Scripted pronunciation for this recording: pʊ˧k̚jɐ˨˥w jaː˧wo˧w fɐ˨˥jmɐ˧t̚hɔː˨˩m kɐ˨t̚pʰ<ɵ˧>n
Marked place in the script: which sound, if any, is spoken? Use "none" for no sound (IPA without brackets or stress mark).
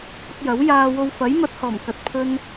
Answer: ɵ˧